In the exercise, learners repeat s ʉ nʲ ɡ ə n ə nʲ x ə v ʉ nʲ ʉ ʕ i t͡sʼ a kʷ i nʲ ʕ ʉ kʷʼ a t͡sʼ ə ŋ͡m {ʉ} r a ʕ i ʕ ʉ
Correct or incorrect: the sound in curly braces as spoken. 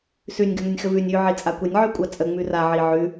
correct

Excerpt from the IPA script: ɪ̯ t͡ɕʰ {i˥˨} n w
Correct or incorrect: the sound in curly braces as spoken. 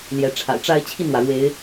correct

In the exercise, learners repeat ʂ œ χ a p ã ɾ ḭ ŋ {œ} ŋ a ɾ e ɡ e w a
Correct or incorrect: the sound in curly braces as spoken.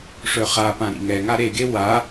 incorrect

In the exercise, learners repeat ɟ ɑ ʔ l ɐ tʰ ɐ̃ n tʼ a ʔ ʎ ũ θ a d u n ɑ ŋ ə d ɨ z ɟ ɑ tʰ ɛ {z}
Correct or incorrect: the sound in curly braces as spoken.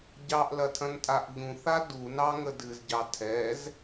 correct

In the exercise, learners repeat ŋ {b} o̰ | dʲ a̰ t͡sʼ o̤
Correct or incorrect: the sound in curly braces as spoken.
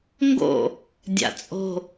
incorrect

